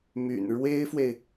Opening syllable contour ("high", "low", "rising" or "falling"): low